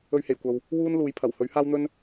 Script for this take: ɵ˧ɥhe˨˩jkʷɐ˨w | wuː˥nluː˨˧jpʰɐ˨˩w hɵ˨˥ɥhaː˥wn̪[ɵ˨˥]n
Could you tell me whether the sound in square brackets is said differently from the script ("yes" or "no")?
yes